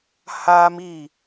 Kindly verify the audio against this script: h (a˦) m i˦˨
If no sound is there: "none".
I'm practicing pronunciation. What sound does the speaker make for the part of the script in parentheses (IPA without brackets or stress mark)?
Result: a˦